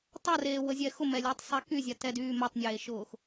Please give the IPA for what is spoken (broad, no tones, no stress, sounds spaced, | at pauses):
tˤ a r eː w ə zʲ ɛ x ʊ m ɛ lʲ ɛ tˤ sˤ ɛ k y zʲ a t ɛ d yː m ə tˤ nʲ eː ʃ ʊː x